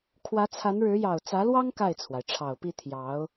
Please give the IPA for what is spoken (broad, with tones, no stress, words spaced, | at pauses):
kʰwä˧˥t͡sʰa˧˥nɻɻ̩˧˥ jɑ˨˩ʊ̯t͡sä˧˥lwɑ˥ŋ ka˥˩ɪ̯t͡sʰwa˩ɪ̯ ʈ͡ʂʰɑ˨˩ʊ̯pi˥˩ t̪ʰjɑ˧˥ʊ̯